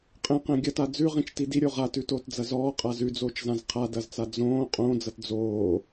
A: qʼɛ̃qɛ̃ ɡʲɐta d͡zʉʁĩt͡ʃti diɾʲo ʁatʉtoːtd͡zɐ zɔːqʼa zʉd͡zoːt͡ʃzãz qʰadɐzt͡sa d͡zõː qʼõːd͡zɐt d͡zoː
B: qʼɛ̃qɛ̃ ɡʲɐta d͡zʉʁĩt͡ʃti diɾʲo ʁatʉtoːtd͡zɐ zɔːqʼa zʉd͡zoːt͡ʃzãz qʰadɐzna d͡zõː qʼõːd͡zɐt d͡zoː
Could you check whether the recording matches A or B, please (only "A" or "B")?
A